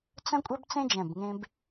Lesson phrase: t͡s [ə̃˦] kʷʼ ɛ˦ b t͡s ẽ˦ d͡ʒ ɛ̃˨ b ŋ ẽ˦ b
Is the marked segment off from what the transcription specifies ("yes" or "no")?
no